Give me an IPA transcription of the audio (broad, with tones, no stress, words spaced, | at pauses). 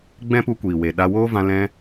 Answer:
ɡ͡bɛ̃˦pu˧kʷiː˨we˨ ɗa˧woː˦ vã˧ lɛ̃˦